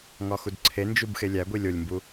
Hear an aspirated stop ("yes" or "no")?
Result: yes